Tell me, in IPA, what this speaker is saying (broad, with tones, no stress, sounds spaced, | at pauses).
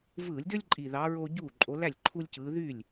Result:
v ɯː˧˩˧ lʲ d ø˦ lʲ ǃʼ i˨˩ ð ɑ˨˦ ɹ oː˦ ɟ uː˥˩ ǃʼ o˨˦ l æ˥˩ lʲ ǃʰ u˦ lʲ c ɯː˨˦ ð y˥˩ lʲ